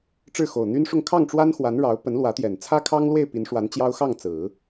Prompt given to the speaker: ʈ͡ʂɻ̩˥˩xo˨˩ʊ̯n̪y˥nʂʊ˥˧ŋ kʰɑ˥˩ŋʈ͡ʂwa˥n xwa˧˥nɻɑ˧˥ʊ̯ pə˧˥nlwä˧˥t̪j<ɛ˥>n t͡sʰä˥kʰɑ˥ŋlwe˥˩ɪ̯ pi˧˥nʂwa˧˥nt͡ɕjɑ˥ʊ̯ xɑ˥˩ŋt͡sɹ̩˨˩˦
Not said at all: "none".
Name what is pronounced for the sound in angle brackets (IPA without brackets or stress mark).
ɛ˨˩